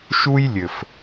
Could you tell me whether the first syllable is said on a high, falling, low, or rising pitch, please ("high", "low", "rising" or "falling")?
high